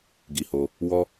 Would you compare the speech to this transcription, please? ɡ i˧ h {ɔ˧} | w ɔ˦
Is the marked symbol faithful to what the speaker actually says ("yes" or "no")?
no